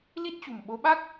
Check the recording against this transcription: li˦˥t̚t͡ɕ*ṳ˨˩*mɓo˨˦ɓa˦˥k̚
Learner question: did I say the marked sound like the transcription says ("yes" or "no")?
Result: yes